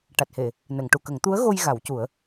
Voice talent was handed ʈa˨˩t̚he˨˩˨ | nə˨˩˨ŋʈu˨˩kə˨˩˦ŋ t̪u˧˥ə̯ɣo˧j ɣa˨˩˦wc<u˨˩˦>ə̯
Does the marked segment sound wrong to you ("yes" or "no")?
no